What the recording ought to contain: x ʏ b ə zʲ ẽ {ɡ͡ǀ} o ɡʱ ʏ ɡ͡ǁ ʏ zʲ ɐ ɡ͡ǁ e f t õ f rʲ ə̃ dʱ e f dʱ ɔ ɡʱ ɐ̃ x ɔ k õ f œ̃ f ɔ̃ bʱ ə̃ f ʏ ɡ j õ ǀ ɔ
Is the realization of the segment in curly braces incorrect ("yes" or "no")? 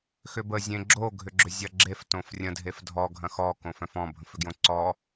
yes